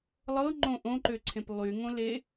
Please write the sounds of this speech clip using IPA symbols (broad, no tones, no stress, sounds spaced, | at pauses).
lˠ ɤ ŋ͡ǃ õ ʔ õ ǃ ø ǀʰ ẽ p lˠ y ŋ õ l e